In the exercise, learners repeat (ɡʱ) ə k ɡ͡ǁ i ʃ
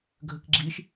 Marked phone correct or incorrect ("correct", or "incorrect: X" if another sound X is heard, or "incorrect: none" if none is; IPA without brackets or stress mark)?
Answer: correct